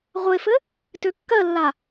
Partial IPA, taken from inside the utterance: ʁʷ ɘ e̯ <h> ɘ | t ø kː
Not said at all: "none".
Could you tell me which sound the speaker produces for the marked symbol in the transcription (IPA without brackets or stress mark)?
f